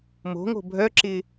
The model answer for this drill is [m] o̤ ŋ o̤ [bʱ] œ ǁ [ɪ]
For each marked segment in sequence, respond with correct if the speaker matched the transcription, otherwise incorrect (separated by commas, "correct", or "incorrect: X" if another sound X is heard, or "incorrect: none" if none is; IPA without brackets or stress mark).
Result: correct, correct, correct